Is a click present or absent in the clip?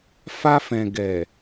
absent